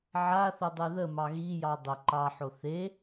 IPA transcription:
ʕ a θ ə dˤ e ð ə m ɑ ɣ i j ɑ dˤ ə ǃ ɑ ħ o θ e

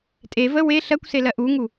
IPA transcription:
tʼ e v ə w e ɬ ɜ kʷ s e l ɜ ʔ u ŋ u

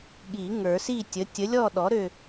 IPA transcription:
ɠ i˨˩˦ ŋ ə˞˨˩˦ s i˥˧ tʲ ə˨˥ tʲ ə˨˥ lʲ ɔ˥˧ ɗ ɔ˨˥ ɾ ø˥˧

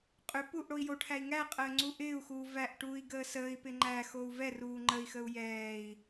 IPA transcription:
qʼ ʏ p uː ʔ ɽ o i̯ j o ʈʰ æ i̯ ŋ æ qʼ əː ŋ͡ǀ u ʔ ɪː u̯ x uː v æ ʔ ʈ uː i̯ ɡ əː s əː i̯ p ɪ ŋ͡ǃ æ x o u̯ v ɛ r uː ŋ͡ǃ ə i̯ x ə u̯ j ɛː i̯

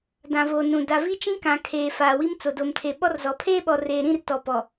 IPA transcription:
d ã˨ v o˨ n ũ˨ d a˨ v i˦ t͡ʃ ĩ˦ k ã˨ kʰ eː˨ f aː˨ w i˦ m t͡s o˨ d o˨ m tʰ e˨ ɓ ɔ˦ r z ɔ˨ pʰ eː˦ ɓ ɔ˨ r eː˨ ɾ ĩ˦˨ r t ɔ˨ p ɔ˨

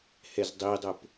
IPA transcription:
h ɛ z dˤ i dˤ o p

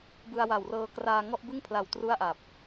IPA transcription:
b ɯ˧ a̯ w a˨˩ w r ɤː˧ k r aː˧ ŋ ɔ˥˩ ʔ b ɯ˥˩ ŋ pʰ l a˨˩ w t r u˥˩ a̯ ʔ a˨˩ p̚

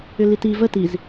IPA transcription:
ʏ l i t i v ə t i z

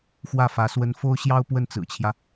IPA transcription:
x w ä˥˩ f ä˧˥ s w ə˥ n f o˥ ʊ̯ ɕ j ɑ˥ ʊ̯ p w ə˥˩ n t͡s ɹ̩˨˩ t͡ɕʰ j ä˦

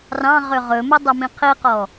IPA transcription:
r ɑ̃ ʁ ø ʁ ɵ m ɵ dˤ ɵ m ĩ qʰ i q ɔ

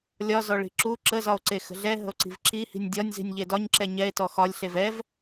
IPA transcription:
lʲ ɒ z ɔ ɭ i̤ ǁ u ǁ ə z ɒ o̯ ǀ e x ə̤ ɮ ɛ ɦ ə̤ o̯ ǀ i̤ v ǁ i h i̤ nʲ dʲ ɒ nʲ z i̤ nʲ ʎ e d ɒ ɲ ǁ ɛ ɲ ɛ e̯ t ɔ x ɒ lʲ ɬ e v ɛ v

